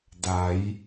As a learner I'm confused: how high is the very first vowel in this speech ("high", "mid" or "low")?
low